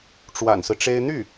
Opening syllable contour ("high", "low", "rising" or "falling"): low